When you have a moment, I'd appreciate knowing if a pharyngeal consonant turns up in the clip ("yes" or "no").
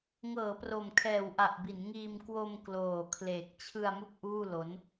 no